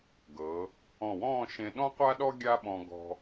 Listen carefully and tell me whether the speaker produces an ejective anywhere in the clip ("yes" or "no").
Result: no